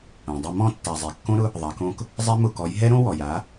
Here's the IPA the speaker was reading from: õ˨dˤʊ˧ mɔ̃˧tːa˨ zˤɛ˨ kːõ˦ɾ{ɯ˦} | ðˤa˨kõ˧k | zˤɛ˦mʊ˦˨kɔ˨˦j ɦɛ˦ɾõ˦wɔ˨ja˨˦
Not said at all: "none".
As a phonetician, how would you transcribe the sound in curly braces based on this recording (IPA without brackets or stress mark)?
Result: ʊ˦